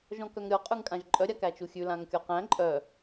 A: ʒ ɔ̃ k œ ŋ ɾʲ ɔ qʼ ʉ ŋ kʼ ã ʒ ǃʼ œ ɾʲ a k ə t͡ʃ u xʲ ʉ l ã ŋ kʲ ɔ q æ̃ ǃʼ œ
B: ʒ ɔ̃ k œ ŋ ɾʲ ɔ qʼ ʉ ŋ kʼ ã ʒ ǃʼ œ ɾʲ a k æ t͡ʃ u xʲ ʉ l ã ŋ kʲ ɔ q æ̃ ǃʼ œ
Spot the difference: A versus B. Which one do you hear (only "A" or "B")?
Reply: B